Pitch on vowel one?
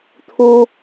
high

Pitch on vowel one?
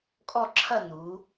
falling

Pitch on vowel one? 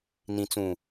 low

